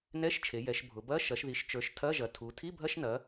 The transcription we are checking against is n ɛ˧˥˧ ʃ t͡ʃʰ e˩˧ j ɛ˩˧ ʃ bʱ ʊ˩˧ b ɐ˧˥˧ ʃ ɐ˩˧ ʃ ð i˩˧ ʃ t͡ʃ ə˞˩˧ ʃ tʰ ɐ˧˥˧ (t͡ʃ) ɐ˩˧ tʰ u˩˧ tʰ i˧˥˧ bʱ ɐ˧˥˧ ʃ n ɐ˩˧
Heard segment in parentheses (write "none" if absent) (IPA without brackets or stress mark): ʒ